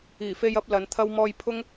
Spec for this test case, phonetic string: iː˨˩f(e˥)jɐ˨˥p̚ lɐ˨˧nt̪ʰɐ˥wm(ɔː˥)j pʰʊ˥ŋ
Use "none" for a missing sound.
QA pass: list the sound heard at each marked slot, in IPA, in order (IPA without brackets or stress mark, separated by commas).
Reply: e˧, ɔː˥